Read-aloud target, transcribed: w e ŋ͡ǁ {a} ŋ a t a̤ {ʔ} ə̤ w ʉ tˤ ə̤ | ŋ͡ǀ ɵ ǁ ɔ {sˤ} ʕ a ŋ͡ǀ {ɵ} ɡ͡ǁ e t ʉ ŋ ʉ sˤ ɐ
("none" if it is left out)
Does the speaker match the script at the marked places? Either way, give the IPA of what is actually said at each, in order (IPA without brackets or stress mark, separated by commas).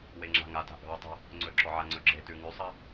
a̤, ʔ, none, ɵ